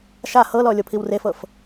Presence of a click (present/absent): absent